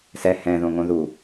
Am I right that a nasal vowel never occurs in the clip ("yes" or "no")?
no